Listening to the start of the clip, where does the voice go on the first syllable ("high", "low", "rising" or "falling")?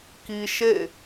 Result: high